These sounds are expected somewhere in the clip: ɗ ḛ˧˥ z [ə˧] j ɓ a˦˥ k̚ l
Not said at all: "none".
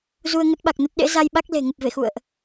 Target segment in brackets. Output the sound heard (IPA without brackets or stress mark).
a˧